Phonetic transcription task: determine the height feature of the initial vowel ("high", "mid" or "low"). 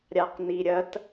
low